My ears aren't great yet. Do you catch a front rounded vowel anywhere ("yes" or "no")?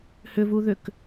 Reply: yes